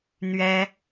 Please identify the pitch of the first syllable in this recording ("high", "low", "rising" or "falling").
high